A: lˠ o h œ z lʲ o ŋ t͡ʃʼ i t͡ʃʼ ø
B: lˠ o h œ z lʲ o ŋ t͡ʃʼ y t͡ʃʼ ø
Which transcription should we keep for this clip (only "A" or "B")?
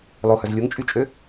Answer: B